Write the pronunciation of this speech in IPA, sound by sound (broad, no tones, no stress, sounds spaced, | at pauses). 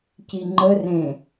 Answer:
c i ŋ͡ǃ ə r ẽ